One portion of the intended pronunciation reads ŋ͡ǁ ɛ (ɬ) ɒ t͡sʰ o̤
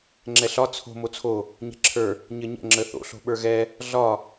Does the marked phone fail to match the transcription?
no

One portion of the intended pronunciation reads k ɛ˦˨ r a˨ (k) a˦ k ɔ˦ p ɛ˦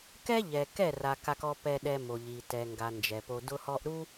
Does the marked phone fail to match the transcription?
no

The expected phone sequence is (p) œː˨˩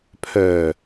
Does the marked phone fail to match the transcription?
yes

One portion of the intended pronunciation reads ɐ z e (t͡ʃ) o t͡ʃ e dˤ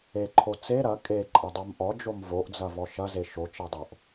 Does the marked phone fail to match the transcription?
yes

